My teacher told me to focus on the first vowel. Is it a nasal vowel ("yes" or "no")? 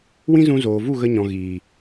yes